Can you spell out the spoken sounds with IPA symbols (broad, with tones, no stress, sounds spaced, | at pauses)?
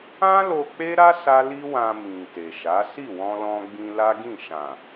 ã˦ l o˧ k͡p e˦ ɾ a˦ s a˦ l i˦ w ã˧ m ĩ˨ t e˨ ʃ a˨˦ s i˦˨ w ɔ̃˧ l ɔ̃˧ ɡ͡b ĩ˧ l a˦ ɡ ĩ˦˨ ʃ ã˨